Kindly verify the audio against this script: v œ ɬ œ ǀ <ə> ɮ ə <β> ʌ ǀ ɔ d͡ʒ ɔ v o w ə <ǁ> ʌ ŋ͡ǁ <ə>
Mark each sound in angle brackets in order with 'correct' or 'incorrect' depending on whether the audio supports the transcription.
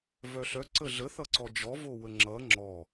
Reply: correct, incorrect: θ, incorrect: ŋ͡ǁ, incorrect: ɔ

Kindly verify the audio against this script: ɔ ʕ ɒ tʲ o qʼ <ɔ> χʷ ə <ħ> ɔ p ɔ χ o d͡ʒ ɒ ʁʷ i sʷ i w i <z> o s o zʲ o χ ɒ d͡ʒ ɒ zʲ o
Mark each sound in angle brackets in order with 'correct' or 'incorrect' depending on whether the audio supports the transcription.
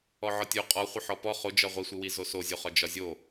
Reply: correct, correct, correct

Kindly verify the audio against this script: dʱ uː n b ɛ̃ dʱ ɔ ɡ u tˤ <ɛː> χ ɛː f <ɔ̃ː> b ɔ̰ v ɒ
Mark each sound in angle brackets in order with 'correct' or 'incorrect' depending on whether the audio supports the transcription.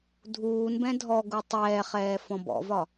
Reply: correct, incorrect: ɔ̃

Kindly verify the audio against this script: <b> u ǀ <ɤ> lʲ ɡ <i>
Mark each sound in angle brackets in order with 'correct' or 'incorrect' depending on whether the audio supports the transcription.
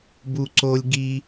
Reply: correct, incorrect: o, correct

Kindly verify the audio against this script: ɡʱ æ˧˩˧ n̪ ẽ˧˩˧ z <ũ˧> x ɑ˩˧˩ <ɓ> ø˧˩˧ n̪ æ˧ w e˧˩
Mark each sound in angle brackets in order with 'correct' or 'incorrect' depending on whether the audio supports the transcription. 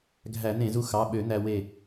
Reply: incorrect: u˧, correct

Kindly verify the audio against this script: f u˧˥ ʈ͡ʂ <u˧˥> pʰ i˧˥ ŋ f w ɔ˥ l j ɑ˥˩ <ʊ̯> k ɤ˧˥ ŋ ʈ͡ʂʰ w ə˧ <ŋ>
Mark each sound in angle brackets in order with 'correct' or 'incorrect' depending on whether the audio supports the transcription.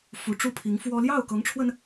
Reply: incorrect: u˥, correct, incorrect: n

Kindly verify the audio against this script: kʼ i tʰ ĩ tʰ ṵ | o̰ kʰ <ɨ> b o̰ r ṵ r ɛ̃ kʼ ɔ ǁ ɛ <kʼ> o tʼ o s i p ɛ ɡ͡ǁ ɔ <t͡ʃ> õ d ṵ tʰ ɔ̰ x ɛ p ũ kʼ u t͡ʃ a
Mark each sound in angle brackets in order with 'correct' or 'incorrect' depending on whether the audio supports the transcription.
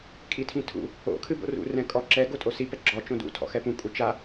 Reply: correct, incorrect: ɡ, correct

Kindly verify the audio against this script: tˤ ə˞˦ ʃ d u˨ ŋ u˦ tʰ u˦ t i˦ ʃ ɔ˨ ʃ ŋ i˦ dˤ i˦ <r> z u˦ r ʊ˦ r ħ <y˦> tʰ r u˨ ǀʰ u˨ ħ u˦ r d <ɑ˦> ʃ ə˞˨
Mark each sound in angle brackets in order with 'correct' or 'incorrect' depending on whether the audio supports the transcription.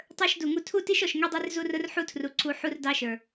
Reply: correct, incorrect: u˦, correct

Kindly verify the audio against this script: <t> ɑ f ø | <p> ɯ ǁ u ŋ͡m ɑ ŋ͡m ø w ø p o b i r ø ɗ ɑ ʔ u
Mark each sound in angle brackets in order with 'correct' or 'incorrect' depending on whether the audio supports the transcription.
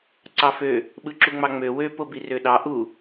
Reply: incorrect: ǀ, incorrect: ɓ

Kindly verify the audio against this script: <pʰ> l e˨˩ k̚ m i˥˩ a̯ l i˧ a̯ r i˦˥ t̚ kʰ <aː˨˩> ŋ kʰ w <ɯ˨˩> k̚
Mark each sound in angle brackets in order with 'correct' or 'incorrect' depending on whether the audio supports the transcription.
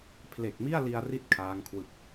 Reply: correct, incorrect: aː˦˥, correct

